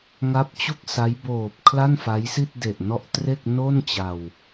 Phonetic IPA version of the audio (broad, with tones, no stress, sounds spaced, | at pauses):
ŋ a˦˥ p̚ t͡ɕ u˥˩ k̚ s a˦˥ j b oː˨˩ p̚ kʰ l a˥˩ n f a˦˥ j s i˥˩ t̚ d e˨˩ ʔ n ɔ˦˥ ʔ t r e˥˩ k̚ n o˥˩ n t͡ɕ a˧ w